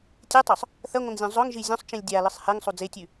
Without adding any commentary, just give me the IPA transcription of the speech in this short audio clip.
tʲetˤɵsˤ | θɐŋʷɐ̃ŋzʲõ zˤɵŋʒi zʲõsˤt͡ʃĩlʲ dʲalɨsˤ heŋsˤu d͡zetʲʉ

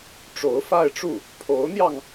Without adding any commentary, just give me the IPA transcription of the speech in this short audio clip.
ʈ͡ʂo˧˥ʊ̯fa˥˧ɪ̯ʈ͡ʂu˥˩ | pʰo˧˥ʊ̯n̪jɑ˧ŋ

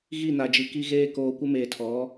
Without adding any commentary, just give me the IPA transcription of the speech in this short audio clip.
ɣi˦˨na˨d͡ʒi˨ki˦ ɣeː˦ koː˨kʷɪ˦meː˨tʰɔ˨˦

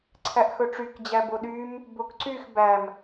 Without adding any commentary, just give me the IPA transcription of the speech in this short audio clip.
ǀʰæʔxɵʈ͡ʂyk d͡ʑæboɗym | bokǀyx bæm

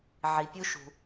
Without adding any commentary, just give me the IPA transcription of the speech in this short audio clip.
ʕi˩pʲu˧ʃṳ˩

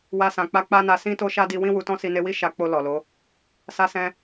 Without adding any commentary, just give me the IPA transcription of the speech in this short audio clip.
wa˧sã˨k͡pa˧ k͡pa˦na˧ sĩ˦ to˦ʃa˦di˧ wĩ˦wu˧tɔ̃˦ si˧ne˧wi˦ ʃa˧k͡po˧ lɔ˨lo˨˦ | sa˧sɛ̃˧

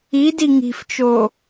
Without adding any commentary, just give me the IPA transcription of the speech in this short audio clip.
idi ŋi̤ft͡ʃo

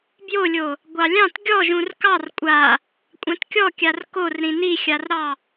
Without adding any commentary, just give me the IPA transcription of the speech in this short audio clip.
bjolʲo | ɡʷɑlʲɑ̃t ɡʲɔʒũr kɑr kʷʼa | kʷʼãtkʲɔkʲar kor ɾĩnixʲarɾɑ

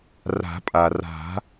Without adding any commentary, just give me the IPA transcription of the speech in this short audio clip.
ra̤˨˩˦pʼa˩ra̤˨˩˦

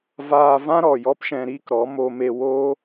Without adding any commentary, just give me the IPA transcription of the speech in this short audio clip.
vaː˧vã˦ɾɔ˨ jɔ˦pʃɛ̃˧ɾiː˦kɾɔ˨˦ mo˧me˧ woː˦

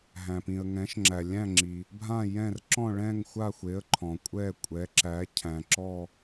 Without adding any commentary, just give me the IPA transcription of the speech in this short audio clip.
ɦæ̃˩pĩ˩ə̯ ŋɛ̃˩˥ʃŋ͡ǁæ˩lʲæ̃˥˨ŋ͡ǁi˩ | bʱã˥˨jɛ̃˥˨r ǁɔ̃˥˨ɭɛ̃˥˨ŋxʷa˥˨xʷe˩˥ə̯ ǃʰɔ̃˩kʷʼɛ˥˨ kʷʼɛ˩˥ǁæ˩˥cʰæ̃˩ ǁɔ˥˨

